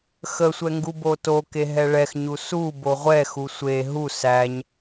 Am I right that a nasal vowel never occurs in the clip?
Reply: yes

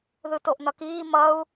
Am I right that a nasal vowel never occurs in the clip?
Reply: yes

